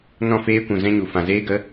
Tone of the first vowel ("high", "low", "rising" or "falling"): falling